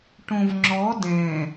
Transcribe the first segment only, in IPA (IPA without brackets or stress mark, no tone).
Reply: ʈ